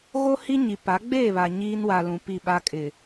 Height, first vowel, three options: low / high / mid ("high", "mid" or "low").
mid